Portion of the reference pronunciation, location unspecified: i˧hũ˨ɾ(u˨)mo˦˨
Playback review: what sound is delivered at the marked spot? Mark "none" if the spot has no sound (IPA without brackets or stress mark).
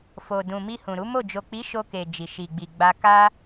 u˨˦